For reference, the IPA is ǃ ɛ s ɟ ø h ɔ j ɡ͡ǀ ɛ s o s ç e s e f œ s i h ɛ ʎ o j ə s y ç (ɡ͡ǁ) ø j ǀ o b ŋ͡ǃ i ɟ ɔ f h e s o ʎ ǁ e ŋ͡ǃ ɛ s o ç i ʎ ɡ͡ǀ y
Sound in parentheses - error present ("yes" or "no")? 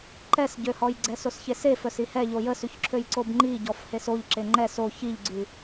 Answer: yes